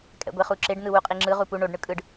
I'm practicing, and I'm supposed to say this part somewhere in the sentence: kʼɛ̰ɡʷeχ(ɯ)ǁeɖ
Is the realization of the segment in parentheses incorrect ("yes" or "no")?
yes